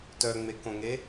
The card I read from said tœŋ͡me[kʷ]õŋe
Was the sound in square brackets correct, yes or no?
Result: no